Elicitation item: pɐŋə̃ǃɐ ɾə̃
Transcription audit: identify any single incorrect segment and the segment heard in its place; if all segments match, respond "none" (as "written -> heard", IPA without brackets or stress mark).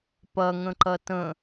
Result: ɾ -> t